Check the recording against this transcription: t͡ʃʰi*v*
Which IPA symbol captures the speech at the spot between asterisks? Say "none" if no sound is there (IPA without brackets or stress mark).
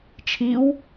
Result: w